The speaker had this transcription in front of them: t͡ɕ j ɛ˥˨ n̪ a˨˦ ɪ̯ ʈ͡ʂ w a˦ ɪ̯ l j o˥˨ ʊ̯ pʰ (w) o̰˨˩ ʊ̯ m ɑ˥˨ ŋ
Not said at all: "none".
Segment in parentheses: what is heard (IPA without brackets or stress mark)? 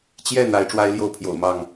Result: j